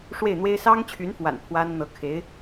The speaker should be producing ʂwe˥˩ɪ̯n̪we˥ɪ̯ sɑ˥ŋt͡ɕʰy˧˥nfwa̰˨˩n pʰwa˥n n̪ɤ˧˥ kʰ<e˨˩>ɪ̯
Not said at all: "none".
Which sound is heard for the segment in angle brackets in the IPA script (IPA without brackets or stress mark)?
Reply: e˧˥